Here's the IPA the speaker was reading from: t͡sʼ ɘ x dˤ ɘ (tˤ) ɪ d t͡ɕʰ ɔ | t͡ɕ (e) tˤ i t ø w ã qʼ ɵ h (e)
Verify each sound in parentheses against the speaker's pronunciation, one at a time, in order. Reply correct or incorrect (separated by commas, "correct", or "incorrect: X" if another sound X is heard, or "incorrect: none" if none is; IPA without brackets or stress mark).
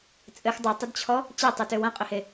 correct, correct, correct